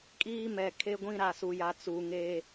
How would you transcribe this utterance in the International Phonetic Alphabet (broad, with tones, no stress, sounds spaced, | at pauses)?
kʼ iː˦ m ɛ˨ kʰ e˦ ɡʷ ĩ˦ ɾ a˨ s u˨ j a˨ t͡s u˨ ŋ e˦